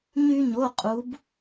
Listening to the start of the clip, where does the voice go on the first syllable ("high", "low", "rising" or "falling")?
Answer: high